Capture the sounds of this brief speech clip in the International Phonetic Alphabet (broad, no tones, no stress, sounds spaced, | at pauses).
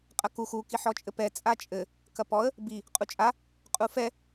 qʼ ɐ k u x u k i ħ ɔ t͡ʃʼ ɘ p ɛ t͡sʼ a t͡ʃʼ ɘ | k ɐ p ɔ ə̯ | b i | qʼ u t͡ʃʼ a | qʼ u f ɛ